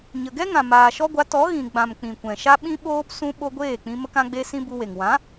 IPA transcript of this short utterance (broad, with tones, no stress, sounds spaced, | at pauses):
ɲ ə˨ ɡ ɛ˦ ŋ ã˨ m aː˨ ʃ ɔ˦ ɡʷ a˨˦ t ɔ˨˦ ɣ ĩ˨ ɡ͡b ã˨ m k͡p ĩ˨ kʷ ɛ̃˨ ʃ a˦ ɓ ĩ˦ ɓ oː˦ p s ũ˦ ɓ o˦ ɡʷ eː˦˨ k͡p ĩ˧ m ə˦ k ã˦ ɡ͡b e˦ s ĩ˦ b u˧ w e˨ ŋ w ã˨˦